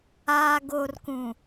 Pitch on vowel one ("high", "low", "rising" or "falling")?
low